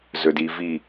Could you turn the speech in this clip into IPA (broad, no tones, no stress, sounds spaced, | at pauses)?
z ɵ d i v i